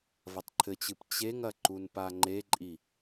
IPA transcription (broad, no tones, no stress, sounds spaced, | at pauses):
v ɐ tˤ ǃʰ ɘ t͡ɕ ɨ p t͡ɕ e ŋ ɐ ǃ u n p a ŋ͡ǃ e ǃʼ i